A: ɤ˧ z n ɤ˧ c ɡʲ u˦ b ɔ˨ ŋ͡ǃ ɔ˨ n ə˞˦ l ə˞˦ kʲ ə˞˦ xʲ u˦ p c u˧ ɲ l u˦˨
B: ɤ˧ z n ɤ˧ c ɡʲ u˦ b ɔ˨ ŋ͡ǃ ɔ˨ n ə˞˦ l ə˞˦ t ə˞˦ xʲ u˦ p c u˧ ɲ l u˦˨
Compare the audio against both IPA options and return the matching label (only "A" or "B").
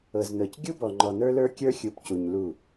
A